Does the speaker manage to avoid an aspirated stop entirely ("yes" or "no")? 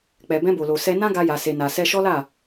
yes